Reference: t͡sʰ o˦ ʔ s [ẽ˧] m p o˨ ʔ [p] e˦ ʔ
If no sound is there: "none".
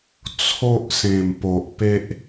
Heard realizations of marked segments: ẽ˨˩, p

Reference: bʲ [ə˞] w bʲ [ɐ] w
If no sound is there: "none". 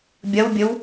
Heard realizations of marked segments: ɐ, ə

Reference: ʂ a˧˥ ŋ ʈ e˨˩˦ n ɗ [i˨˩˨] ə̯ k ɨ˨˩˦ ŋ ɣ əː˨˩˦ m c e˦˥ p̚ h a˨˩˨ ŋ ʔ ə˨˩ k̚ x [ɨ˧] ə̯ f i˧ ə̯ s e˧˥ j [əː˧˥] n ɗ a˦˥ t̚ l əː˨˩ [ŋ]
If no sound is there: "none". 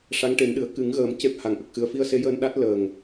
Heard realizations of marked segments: ɨ˨˩˨, ɨ˨˩, əː˧, ŋ

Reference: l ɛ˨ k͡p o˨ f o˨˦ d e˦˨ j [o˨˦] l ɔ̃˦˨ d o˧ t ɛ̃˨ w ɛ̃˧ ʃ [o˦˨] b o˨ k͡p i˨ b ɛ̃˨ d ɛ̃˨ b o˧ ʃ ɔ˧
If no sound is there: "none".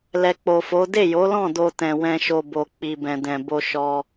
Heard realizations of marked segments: o˨˦, o˧

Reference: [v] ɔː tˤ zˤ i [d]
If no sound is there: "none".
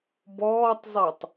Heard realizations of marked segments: b, tˤ

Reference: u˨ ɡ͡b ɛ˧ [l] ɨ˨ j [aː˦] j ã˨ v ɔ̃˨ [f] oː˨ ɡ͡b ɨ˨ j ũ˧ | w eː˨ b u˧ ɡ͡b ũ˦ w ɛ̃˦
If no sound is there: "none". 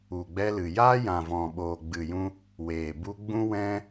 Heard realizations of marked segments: l, aː˦, ɓ

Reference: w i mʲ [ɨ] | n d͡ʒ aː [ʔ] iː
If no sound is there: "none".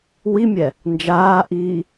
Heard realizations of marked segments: ɛ, ʔ

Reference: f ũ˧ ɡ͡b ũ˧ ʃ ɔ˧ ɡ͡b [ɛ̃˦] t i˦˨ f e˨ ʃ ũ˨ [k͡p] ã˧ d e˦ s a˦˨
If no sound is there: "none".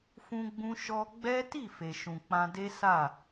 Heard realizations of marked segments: ɛ˦, k͡p

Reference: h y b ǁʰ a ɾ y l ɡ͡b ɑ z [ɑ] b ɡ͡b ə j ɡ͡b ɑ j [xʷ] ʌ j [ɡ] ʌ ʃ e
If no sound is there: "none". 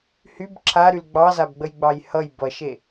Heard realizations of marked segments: a, h, b

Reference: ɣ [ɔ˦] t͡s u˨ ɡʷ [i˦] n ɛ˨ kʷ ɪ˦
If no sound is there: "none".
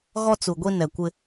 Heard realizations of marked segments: ɔ˦, i˦

